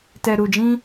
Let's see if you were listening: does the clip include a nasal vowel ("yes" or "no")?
yes